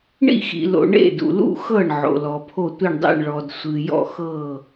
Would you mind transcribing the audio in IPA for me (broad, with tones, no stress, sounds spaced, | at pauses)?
ɳ ḭ˧˩ x ḭ˩ l o̰˩ ɳ ḛ˧˩ d ṵ˩ l ṵ˧˩ x ɤ˧˩ ɳ ʕ o̰˩ l ɔ˩ pʰ o˧˩ tʷ i˧˩ ɳ dˤ ḭ˧˩ ɳ ɭ ɔ˩ d sʷ ɨ˩ j ɔ̰˧˩ x ɤ˧˩